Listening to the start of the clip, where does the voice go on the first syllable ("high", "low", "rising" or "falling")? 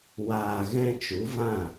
low